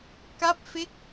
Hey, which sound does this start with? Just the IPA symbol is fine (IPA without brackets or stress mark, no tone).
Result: k